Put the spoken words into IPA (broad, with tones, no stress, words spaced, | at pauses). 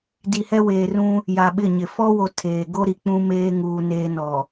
di˨hɛ˦weː˨rũ˦ | ja˨ɓɪ˦˨ɲɪ˨ fɔ˦wo˨ tʰeː˨ ɡo˦ɾi˨ k͡pũ˦meː˦ŋuː˨ neː˦nɔ˨